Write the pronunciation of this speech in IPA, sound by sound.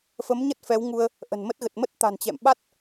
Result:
f ə˨˦ m ɲ ə˦˥ t̚ f ɛ˨˦ w ŋ u˧ ə̯ | ʔ ə̤˨˩ n m ə˦˥ t̚ ɣ ə˨˩ t̚ m ə˦˥ t̚ t̪ a̤˨˩ n t͡ɕ ɛ̰˧˨ m ɓ a˦˥ t̚

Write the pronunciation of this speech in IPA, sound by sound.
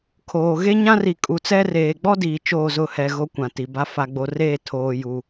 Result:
kʰ oː˨ ɣ e˦ ɲ ã˦ r i˨ kʼ u˨ t͡s ɛ˦ r eː˨ ɡ͡b ɔ˦ d iː˨ t͡ʃ oː˦˨ z ʊ˦˨ h ɛ˨ ɣ o˦ kʷ ã˨ t i˨ b a˦ f a˨ ɡ͡b o˨ r eː˦˨ tʰ oː˨ j u˨

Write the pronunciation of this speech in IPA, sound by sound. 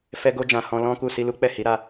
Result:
f ɛ˧ ɡ o˧ d͡ʒ ã˨ h ɔ̃˧ l ɔ̃˦ k u˦˨ s i˧ l u˦ k͡p ɛ˦˨ h i˨˦ ɾ a˦˨

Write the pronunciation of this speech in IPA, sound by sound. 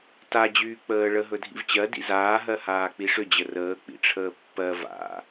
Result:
t a d͡ʑ yː k͡p əː ɭ ə ɦ ɵ dʱ ḭ v t͡ɕ ɜ d ḭ z aː ɦ ɜ h aː k͡p i ʂ ʏ d͡ʑ ə r əː k͡p ḭ ʈ͡ʂʰ əː pː ɜ v a̰

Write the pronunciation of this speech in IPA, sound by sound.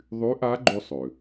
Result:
ðˤ y˧˥ ʔ a˧˥ ɡ͡ǃ ʉ˧ sˤ ø˩

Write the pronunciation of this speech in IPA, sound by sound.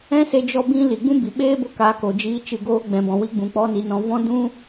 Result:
ɛ̃˦ s e˧ d͡ʒ ɔ˧ b ĩ˦ l i˨ ɡ͡b ũ˦ b i˨ ɓ eː˦ b o˧ k a˨˦ k o˨ d͡ʒ iː˧ t͡ʃ ɨ˧ ɡ oː˦ ɡ͡b ɛ̃˨ b ɔ̃˨ w i˧ ɡ͡b ũ˨ k͡p ɔ˦ n i˧ n ɔ̃˧ v ɔ̃˦ d ũ˦

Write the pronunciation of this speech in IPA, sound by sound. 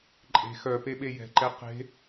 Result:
ǃʼ e̤ x œ p e ɓ e j ɛ̤ ǃ ɛ q e̤

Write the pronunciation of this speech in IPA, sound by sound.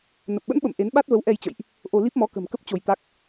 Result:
n ə˨˩ p̚ ɓ ə̰˧˥ n ɓ ə̰˧˨ m ʔ e˨˦ n ɓ a˦˥ t̚ v ə˨˦ w ʔ ɛ˧ j t͡ɕ ə̰˧˨ j ʔ | ʔ o˧ l i˦˥ p̚ m ɔ˨˦ k ə̤˨˩ m k ə˦˥ p̚ t͡ɕ o˧ j t̪ a˦˥ k̚

